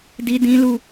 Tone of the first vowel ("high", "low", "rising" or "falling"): high